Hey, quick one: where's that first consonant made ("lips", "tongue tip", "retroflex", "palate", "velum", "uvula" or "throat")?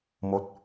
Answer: lips